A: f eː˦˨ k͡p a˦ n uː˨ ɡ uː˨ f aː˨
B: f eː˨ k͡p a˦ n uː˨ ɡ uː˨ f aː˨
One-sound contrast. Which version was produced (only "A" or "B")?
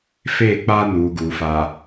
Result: A